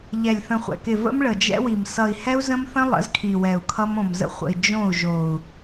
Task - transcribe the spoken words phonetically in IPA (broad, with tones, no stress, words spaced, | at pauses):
ʎɛ˨lʲθə̃˨χʷɛ̰˨kɪ˨ və̰˦mɭə˨d͡ʒɛ̰˦wi˨m sʌ˨i̯hɛ˦u̯zə̃˦mθə̃˦ lˠə̰˨˦zkʰi˨wɛ˨u̯ kʰʌ˦mõ˨mzə̰˦ χʷə̰˨i̯ d͡ʒõ˦˨u̯ʒo˨u̯